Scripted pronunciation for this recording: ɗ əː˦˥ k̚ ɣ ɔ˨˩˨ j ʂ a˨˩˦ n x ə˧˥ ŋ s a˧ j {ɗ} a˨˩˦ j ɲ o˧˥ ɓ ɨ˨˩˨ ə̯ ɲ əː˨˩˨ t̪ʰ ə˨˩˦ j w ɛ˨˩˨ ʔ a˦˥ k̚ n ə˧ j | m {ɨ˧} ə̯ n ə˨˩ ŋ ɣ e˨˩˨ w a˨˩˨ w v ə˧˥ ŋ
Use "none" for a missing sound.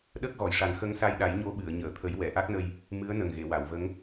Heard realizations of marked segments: ɗ, ɨ˧˥

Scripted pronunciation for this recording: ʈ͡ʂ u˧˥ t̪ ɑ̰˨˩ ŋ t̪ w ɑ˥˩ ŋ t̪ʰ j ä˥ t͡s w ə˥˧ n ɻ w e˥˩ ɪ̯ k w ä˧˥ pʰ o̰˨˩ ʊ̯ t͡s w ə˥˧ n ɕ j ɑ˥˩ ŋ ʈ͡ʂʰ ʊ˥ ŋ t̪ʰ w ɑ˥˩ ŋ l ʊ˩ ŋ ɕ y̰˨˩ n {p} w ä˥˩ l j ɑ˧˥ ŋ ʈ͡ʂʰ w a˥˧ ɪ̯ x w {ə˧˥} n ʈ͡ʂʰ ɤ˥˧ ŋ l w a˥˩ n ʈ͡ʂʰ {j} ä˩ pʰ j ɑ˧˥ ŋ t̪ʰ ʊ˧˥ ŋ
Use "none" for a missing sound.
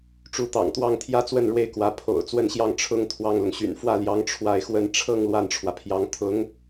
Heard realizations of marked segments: f, ə˥˧, w

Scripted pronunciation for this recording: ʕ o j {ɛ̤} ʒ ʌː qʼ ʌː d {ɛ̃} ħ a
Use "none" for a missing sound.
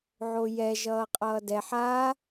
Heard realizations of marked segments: ɛ, ɛ

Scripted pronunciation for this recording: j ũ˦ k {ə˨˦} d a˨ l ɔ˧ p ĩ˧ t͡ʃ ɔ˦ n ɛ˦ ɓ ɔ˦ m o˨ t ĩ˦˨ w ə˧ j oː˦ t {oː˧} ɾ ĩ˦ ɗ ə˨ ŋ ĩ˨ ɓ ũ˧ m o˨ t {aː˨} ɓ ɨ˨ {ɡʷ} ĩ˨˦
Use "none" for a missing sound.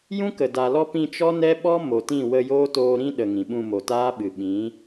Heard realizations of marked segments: ə˨, oː˧, aː˦, ɓ

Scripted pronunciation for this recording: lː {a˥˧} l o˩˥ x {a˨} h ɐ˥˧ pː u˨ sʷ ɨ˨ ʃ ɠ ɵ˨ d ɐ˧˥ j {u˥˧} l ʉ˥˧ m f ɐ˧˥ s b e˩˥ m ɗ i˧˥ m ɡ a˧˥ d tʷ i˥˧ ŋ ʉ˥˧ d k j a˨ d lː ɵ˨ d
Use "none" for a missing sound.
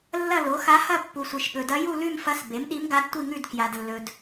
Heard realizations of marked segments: ɐ˥˧, a˧˥, u˥˧

